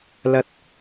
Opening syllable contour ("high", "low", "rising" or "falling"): low